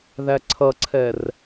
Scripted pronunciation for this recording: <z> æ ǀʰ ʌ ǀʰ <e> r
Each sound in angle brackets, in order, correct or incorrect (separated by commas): incorrect, incorrect